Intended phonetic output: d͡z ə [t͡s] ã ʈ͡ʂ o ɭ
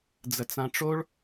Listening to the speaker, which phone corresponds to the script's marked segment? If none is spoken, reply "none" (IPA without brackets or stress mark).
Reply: t͡s